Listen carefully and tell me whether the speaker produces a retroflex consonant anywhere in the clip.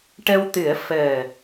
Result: yes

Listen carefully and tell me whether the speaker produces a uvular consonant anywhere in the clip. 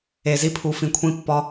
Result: no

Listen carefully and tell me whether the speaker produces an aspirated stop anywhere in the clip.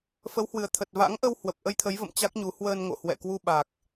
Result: yes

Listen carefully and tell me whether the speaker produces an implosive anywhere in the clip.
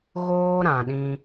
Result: yes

